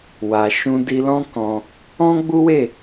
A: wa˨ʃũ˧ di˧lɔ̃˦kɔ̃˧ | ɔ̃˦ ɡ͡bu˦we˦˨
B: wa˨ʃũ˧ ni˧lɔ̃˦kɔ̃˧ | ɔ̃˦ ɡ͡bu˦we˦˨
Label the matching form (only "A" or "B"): A